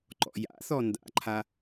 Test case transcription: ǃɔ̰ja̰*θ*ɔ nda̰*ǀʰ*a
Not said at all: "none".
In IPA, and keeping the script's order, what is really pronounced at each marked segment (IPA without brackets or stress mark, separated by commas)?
θ, ǃʰ